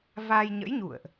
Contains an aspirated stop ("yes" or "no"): no